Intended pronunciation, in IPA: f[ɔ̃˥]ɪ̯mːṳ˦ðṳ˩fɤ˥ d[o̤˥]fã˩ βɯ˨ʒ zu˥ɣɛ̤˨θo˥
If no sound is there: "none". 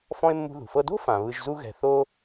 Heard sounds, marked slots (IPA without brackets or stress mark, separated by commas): ɔ̃˥, o̤˥